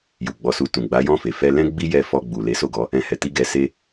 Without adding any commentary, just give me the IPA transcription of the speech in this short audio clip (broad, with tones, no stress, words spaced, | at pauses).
ju˨ɡ͡bɔ˨˦su˧ tũ˨ɡ͡ba˨˦jɔ̃˦˨fe˨ fɛ˧lɛ̃˦ ɡ͡bi˦jɛ˧fɔ˧ ɡ͡bu˨ le˨˦so˦˨ɡɔ˨˦ | ɛ̃˧ hɛ˨ti˧ ɡɛ˧ se˦